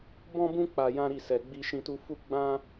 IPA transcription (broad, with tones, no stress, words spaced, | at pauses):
bɔ̃˦bũ˦ k͡pa˧jã˦ɾi˦˨ sɛ˧ɡ͡bi˦ ʃĩ˧tu˧fu˦ ɡ͡bã˦